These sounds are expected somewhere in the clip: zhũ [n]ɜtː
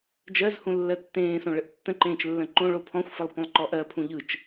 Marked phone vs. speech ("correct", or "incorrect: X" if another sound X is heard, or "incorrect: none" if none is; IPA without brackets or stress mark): incorrect: lː